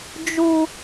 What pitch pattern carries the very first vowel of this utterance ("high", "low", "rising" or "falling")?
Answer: high